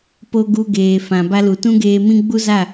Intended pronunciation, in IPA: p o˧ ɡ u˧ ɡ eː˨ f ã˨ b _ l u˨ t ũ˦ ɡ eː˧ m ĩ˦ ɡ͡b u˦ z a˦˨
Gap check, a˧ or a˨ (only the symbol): a˧